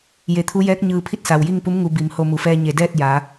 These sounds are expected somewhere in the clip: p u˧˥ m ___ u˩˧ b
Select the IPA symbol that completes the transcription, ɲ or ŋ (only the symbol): ŋ